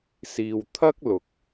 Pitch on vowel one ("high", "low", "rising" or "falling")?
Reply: low